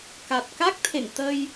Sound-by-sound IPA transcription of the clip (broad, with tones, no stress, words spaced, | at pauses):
ka˨˩t̚ka˦˥k̚t̪ʰḛ˧˨ŋ t̪ə˧j